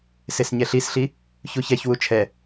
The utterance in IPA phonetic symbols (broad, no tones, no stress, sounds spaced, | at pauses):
s e s ɲ ɛ ɬ i s ɬ i | ç u ç ɛ ç w u t͡ʃʰ ɛ